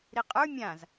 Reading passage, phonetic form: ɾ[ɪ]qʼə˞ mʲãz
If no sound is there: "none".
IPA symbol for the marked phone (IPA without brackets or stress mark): i